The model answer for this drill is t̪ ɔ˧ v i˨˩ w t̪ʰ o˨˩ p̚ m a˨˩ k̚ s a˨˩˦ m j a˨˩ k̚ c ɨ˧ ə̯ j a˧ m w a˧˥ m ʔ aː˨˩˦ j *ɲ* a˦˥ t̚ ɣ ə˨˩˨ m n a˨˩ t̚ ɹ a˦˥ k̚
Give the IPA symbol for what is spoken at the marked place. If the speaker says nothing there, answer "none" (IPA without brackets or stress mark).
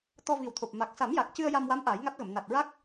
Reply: ŋ